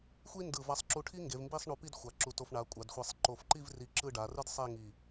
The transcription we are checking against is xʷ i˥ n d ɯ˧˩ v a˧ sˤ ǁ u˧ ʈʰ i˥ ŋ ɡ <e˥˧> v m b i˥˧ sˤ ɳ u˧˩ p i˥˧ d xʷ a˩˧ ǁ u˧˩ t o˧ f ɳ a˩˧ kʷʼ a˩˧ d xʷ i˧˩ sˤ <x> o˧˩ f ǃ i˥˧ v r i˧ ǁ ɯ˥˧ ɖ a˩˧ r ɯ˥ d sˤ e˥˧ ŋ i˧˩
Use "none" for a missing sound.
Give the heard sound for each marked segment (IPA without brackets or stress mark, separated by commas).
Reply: e˩˧, ǃ